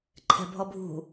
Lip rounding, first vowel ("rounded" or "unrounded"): unrounded